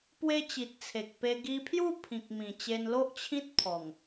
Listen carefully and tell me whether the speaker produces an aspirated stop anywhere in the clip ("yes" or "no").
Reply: yes